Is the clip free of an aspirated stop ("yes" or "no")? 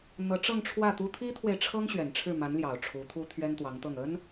no